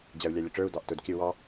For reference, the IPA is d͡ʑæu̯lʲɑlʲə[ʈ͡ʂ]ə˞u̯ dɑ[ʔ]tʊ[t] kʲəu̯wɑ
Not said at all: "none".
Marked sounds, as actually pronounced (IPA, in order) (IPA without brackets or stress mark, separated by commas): ʈ͡ʂ, ʔ, d